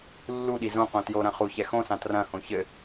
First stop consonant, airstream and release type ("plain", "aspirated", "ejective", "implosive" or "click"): implosive